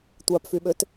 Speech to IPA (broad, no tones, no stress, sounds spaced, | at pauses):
tʷ a p f y ɓ ø t